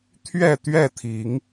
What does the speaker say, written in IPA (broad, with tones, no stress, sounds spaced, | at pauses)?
t̪ʰ ɥ ɛ˥˨ t̪ ɥ ɛ˥˨ t̪ʰ i˨˦ ŋ